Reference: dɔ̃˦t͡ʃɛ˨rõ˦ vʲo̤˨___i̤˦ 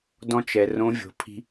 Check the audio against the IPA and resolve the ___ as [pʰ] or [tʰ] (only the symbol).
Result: pʰ